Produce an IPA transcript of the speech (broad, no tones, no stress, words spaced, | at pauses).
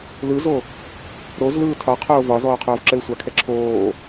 lɯzo | ɾozlɯː tʰɒqʰoː vɒzɔː qʰoːvǁɘːsʷakʰɛ ǁʰoː